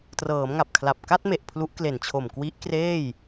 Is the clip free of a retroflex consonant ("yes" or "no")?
yes